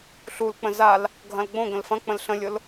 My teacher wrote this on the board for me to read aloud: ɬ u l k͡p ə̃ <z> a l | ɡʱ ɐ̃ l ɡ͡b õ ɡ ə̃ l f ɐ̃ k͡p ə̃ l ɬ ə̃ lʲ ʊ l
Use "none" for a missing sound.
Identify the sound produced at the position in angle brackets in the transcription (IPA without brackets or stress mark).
z